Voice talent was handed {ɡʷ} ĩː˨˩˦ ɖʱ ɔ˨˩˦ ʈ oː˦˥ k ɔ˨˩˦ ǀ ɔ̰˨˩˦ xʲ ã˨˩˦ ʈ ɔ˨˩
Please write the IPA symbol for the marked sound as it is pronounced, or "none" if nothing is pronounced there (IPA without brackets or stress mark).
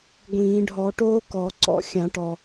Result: ɡʷ